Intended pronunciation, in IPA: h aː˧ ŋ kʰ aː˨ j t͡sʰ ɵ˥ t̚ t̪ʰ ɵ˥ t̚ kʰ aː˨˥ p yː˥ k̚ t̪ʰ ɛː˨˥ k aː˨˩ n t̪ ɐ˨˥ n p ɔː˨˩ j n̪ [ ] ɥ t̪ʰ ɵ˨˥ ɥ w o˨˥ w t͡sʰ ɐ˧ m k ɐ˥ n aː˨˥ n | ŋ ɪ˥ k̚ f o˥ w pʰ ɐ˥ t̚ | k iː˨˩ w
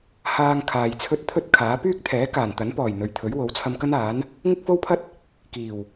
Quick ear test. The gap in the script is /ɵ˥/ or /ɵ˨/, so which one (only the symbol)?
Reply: ɵ˨